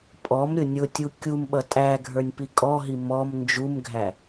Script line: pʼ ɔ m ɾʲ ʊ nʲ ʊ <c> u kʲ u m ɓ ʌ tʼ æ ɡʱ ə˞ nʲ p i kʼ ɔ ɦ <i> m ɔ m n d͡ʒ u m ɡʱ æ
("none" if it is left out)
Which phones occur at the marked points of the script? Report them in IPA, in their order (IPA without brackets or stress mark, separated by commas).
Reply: tʲ, i